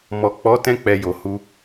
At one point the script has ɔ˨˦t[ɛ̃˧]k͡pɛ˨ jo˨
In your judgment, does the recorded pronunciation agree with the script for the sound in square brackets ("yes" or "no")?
yes